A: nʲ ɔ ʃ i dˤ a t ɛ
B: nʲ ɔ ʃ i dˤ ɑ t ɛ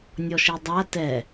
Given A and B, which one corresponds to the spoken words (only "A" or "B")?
A